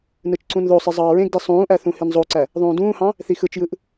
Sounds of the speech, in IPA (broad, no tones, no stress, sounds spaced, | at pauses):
n ɯ t͡ʃ ǀ ũ n ð o sˤ i zˤ ɑː ɹ ẽ ɡ d i sˤ ũː ʔ æ θ ũ h i n zˤ o ǀ æ | ðˤ ũː d ũː h ɑ̃ | θ i x ɯ t͡ʃ j ɯ ʔ